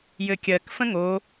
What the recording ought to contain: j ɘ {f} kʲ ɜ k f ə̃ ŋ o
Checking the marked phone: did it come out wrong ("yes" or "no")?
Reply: yes